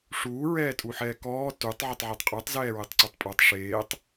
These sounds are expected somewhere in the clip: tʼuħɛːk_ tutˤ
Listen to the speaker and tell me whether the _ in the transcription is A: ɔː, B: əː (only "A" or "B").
A